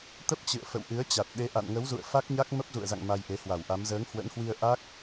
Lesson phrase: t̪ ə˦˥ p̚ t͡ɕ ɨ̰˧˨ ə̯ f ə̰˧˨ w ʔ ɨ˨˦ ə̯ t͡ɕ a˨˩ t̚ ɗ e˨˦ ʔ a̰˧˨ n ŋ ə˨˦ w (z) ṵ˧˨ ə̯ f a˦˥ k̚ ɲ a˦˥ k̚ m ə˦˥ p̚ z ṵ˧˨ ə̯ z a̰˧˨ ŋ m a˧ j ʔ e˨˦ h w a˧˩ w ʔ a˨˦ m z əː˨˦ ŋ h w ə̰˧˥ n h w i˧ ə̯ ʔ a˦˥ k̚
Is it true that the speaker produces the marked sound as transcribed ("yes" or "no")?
yes